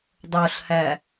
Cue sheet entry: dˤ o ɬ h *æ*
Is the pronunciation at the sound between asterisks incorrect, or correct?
correct